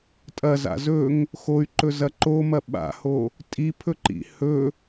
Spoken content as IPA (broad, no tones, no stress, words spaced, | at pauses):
tʼɐza̰ zɵŋ | xoy̯ǃɵzɐ ǃomɐ ɓa̰ho | tʼipʰɵǃḭ hɵ